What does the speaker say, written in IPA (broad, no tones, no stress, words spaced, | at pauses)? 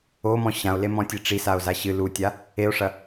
omɔ̃ ɕão̯lemɔ̃tʲe ʈ͡ʂisao̯za ɕɨ lutʲa | eo̯ʂɐ